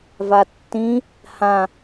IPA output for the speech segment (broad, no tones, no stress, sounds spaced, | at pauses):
v a tː ĩ | h ã